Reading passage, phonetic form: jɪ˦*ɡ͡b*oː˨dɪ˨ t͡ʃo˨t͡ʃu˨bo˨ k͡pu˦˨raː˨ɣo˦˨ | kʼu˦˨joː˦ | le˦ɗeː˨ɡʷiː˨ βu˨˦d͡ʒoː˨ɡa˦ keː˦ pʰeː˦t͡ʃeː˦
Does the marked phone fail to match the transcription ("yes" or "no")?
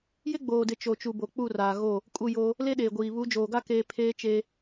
no